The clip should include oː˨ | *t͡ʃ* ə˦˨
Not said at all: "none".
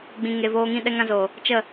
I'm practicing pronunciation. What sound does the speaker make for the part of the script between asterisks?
t͡ʃ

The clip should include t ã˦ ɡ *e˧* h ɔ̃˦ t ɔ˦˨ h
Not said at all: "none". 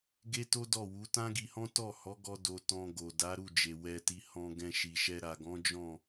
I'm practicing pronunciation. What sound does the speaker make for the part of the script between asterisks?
i˧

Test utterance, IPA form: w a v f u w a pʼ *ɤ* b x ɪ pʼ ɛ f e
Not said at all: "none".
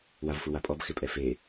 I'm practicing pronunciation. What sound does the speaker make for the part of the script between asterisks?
ɔ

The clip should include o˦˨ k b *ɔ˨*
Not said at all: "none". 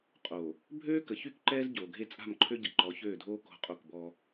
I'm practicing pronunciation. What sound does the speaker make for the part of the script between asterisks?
ɔ˦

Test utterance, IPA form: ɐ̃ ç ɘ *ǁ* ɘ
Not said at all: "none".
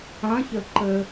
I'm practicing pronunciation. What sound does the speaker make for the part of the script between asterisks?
ǃ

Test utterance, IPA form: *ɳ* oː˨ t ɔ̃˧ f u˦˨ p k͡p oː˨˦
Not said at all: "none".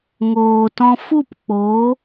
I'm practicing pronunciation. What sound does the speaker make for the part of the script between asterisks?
ŋ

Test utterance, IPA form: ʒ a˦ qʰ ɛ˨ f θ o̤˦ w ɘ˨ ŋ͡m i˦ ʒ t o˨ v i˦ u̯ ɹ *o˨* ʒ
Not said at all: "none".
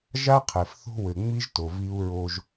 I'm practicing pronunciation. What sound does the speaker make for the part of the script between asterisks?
o˦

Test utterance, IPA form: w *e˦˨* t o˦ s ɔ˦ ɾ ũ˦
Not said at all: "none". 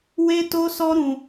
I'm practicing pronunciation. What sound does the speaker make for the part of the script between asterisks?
e˦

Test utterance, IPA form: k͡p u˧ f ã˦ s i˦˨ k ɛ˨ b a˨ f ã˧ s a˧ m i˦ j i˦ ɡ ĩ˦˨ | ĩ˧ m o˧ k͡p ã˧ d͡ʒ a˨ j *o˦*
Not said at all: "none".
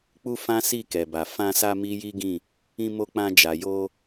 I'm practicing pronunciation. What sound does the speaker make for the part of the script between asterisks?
o˧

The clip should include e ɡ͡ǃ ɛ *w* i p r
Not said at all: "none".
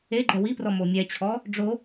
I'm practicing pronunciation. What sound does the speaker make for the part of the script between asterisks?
w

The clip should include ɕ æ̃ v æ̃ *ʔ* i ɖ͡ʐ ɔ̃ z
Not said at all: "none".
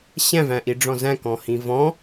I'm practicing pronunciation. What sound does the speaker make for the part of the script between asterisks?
ʔ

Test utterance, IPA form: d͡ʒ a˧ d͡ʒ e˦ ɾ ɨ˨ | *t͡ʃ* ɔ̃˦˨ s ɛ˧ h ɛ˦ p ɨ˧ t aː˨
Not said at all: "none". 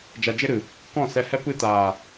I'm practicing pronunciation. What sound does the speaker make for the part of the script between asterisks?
k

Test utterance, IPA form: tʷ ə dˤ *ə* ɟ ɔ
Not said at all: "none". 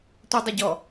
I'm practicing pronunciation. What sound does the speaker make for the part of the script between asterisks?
ə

